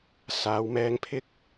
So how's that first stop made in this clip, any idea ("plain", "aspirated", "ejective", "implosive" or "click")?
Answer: aspirated